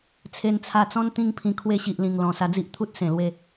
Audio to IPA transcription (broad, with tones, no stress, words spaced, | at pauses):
t͡sʰe˧nt͡sʰa˧t͡sɔ̃˦n t̪ĩ˥˧ŋpʰĩ˧ kʰwe˧ɕi˨ʔlĩ˨˩ŋ lɔ̃˨˩ sa˧d͡zi˦ʔt̪ʰu˦t̚ sẽ˨˩lwe˥˧